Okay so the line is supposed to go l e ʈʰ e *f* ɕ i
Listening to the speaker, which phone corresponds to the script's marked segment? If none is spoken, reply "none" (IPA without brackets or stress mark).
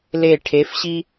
f